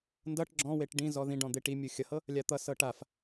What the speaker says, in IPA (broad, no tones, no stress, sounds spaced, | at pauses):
n d ʌ ʈ ɡ͡ǁ ɔ̃ w e ʈ ɖ ĩ z ɔ ð ĩ ɖ ɔ̃ d̪ e ʈ i mʲ u xʲ ʌ h ɤ | lʲ a t̪ ʌ s ɤ ʈ a f